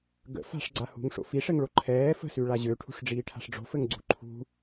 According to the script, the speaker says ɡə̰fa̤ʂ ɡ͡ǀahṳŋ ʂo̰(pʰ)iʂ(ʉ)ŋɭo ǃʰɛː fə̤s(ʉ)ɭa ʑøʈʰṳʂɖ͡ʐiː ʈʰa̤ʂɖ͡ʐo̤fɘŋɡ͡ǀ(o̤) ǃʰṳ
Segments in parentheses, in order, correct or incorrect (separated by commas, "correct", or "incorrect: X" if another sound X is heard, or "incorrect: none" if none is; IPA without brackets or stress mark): incorrect: f, incorrect: ɘ, correct, incorrect: ṳ